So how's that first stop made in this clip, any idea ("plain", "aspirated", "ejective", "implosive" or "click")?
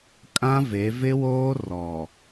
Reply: ejective